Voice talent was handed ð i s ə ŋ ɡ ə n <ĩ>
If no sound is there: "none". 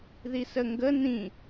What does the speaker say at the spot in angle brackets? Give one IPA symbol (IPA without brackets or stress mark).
ĩ